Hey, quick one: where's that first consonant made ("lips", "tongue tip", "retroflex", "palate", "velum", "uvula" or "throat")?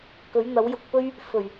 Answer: velum